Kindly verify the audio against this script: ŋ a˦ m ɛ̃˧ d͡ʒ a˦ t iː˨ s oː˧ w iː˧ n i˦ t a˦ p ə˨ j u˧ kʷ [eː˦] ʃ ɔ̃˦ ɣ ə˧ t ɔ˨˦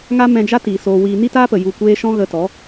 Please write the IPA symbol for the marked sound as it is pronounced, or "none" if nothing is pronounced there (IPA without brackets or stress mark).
eː˦